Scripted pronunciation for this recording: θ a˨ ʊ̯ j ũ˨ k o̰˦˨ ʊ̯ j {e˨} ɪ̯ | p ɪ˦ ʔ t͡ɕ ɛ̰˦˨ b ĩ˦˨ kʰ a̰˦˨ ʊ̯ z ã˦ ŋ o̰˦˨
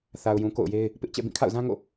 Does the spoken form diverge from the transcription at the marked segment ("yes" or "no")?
yes